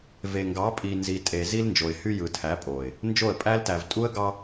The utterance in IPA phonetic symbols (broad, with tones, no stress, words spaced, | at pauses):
ve˨ŋɡɑ˨˦ pʼi˨nzi˨ tʼe˨ zi˦lnd͡ʒo˨ɪ̯hy˦ jɯ˨tʰæ˨˦pʼo˨ɪ̯ | nd͡ʒo˦˨ə̯pʼæ˦ltæ˨v tʼu˦ə̯ɡɑ˦